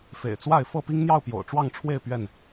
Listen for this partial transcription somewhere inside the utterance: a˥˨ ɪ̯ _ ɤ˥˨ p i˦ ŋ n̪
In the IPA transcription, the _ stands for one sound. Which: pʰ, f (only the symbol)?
f